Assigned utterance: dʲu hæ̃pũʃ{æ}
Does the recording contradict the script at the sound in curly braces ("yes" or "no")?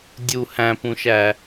no